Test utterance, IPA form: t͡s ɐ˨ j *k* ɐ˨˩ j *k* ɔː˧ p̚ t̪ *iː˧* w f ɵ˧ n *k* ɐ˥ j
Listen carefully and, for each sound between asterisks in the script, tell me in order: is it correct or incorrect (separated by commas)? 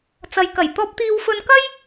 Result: correct, incorrect, correct, correct